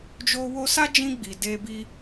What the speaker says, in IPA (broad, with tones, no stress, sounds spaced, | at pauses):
d͡ʒ o˧ w o˧ s a˦ d͡ʒ ĩ˧ ɡ͡b i˨ d e˧ b i˦